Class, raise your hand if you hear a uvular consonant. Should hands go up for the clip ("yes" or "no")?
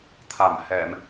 no